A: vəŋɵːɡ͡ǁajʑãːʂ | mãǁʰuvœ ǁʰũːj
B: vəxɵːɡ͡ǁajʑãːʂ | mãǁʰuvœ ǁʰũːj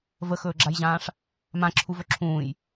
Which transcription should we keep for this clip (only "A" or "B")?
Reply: B